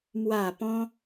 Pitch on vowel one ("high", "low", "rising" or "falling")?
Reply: low